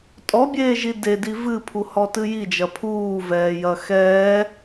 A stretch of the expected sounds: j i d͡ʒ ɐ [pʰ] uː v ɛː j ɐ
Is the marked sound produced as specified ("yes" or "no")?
yes